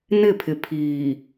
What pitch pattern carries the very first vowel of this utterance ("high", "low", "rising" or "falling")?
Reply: falling